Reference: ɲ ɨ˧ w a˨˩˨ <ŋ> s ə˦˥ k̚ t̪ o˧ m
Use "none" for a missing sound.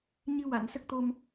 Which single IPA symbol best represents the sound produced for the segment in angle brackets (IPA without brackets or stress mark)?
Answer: n